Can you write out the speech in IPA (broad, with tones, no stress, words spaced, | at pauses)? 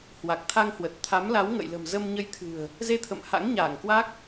hwa˨˩k̚t̪ʰa˧ŋhwə˨˩t̚ t̪ʰa˨˦mla˨˦wŋə̰˧˨j lə̤˨˩mzə˧mɲə˧jt̪ʰɨ̤˨˩ə̯ | ze˧t̪ʰə̰˧˨mha̰˧˥ŋ ɲaː˧˩ŋkwa˦˥k̚